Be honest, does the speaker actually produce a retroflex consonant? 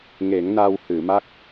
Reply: no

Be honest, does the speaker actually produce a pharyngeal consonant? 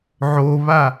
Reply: yes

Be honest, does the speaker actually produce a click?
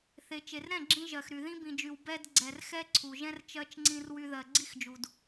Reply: yes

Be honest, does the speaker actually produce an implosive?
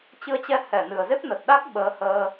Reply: yes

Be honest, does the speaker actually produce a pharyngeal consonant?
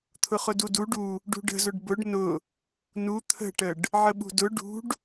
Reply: yes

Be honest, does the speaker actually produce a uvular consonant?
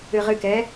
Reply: yes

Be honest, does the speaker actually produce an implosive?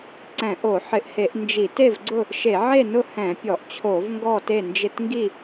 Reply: no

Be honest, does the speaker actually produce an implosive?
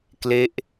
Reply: no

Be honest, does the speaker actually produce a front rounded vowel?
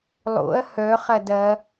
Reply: yes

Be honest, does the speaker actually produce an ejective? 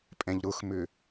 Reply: yes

